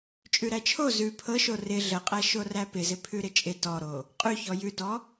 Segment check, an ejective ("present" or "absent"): present